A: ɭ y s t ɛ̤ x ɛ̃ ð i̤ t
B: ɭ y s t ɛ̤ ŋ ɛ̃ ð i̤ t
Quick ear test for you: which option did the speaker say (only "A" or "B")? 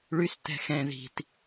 A